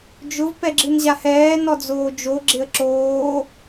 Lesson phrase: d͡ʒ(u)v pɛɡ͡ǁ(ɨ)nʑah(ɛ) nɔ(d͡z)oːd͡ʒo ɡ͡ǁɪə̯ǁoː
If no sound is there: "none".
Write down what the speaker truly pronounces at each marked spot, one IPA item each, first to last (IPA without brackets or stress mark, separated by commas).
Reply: ʊ, ɨ, ɛː, d͡z